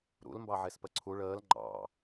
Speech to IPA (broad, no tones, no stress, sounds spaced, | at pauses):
ɾ ṵ l m b ɑ ʕ e s p ə ǀʰ u ɭ əː l ŋ͡ǃ ɑ̰